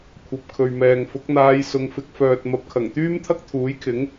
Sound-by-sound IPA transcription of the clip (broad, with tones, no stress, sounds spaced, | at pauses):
kʷʰ ɐ˨ p̚ kʰ ɵ˨ ɥ m ɛː˨ ŋ f ʊ˨˥ k̚ n̪ aː˧ j s ʊ˨˧ ŋ f ɪ˨˥ k̚ f œː˨ t̚ m ɐ˨ p̚ kʰ ɐ˨˩ ŋ t̪ yː˥ m t̪ʰ ɐ˥ k̚ t̪ʰ uː˨˥ j kʰ ɪ˨˥ ŋ